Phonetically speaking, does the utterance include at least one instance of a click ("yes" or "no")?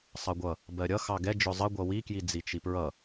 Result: no